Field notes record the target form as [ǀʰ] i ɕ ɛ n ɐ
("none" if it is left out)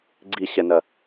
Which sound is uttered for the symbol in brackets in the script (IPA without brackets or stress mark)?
ɡ͡ǀ